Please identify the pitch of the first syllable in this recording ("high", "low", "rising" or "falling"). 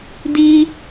high